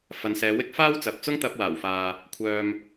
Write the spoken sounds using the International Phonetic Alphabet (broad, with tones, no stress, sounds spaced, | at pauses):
f ɐ˨˧ n s ɛː˨˧ w ɪ˥ k̚ f aː˥ w t͡s ɐ˨ p̚ t͡s ʊ˥ ŋ t̪ ɐ˧ p̚ w aː˨˩ w f aː˨ | kʷʰ œː˨ m